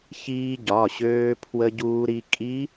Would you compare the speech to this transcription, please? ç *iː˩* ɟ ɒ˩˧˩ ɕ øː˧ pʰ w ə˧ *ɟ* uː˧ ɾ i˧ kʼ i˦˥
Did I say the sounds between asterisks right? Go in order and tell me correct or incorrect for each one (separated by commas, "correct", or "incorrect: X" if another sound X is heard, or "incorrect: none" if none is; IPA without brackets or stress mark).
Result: incorrect: iː˧, correct